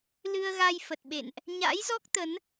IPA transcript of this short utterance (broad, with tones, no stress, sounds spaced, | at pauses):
l ɨ˧ ə̯ ɣ a˧ j f ə˨˩ t̚ ɓ ḛ˧˨ n ʔ | ɲ a̰˧˥ j z ɔ˦˥ k̚ t̪ ə˨˦ n